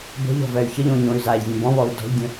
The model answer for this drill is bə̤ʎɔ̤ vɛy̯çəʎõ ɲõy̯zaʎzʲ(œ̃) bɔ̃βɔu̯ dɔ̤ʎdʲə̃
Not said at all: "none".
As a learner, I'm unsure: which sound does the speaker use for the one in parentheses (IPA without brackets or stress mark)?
ə̃